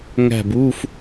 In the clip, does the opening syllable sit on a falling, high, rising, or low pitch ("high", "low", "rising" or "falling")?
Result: falling